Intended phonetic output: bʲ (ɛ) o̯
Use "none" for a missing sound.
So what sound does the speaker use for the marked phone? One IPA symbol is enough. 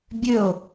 ø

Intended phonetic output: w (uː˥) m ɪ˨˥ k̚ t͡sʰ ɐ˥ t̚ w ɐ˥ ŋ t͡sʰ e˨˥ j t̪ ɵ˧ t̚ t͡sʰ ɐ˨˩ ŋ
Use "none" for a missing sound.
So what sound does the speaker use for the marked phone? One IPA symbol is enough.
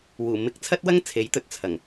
uː˨˩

